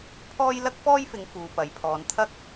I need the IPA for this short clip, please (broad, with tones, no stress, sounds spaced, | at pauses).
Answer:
pʰ ɔː˥ j l ɐ˥ k̚ f ɔː˥ j f ɪ˨˧ ŋ f uː˨ p ɐ˨ j pʰ ɔː˨˧ n t̪ʰ ɐ˥ k̚